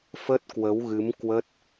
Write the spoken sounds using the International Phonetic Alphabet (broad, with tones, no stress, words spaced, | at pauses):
fə˦˥t̚kwə˨˦wɣɨ˨˦m kwə˦˥t̚